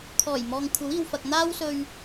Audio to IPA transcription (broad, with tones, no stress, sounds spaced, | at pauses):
kʰ ɔː˨˩ j m ɔː˨ ŋ kʷʰ ɐ˨˥ w iː˨ w f ɐ˨ k̚ n̪ aː˧ w s ɵ˨ ɥ